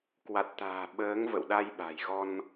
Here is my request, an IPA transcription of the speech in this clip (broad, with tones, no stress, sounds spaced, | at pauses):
k w a˨˩ t̚ t̪ a̤ː˨˩ ɓ əː˨˦ ŋ v ə̰˧˨ w ɗ a˧ j ɓ a̤˨˩ j ɣ ɔ˧ n